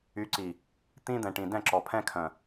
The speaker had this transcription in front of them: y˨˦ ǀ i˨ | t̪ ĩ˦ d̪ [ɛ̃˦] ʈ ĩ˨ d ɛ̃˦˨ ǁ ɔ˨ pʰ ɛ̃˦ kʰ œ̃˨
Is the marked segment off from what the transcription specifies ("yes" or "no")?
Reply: yes